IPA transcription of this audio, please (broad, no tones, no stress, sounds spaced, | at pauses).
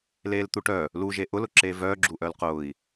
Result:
l eː l t̪ u ʈ œ | l u ʒ e ʔ ʊ l ʊ ǁ eː v œː ɡ͡ǁ u ʔ œ l q ʊː i̯